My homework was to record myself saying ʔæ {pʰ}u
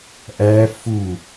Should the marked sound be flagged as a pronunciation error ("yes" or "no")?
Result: yes